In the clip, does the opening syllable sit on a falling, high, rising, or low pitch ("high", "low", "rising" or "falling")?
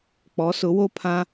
rising